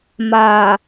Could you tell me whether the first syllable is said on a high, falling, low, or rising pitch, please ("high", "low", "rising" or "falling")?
low